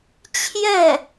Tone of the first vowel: falling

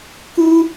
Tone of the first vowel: high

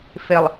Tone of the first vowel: low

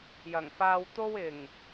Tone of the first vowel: low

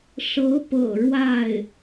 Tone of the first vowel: rising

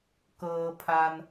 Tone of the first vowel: low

